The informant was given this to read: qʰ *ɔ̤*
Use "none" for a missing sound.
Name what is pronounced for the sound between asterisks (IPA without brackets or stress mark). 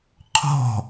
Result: ɔ̤